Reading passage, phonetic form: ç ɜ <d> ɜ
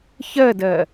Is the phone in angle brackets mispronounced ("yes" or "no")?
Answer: no